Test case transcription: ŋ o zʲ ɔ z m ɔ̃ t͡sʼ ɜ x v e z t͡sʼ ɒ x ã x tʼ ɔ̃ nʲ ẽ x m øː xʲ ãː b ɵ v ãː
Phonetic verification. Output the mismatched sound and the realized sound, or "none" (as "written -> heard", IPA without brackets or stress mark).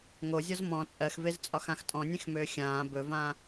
none